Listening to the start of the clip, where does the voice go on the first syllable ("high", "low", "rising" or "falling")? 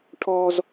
high